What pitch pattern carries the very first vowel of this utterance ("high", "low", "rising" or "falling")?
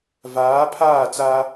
rising